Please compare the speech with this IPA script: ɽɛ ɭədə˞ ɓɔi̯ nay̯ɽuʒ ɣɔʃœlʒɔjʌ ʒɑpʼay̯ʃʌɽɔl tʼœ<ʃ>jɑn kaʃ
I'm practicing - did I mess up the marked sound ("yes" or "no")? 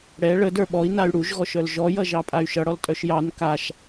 no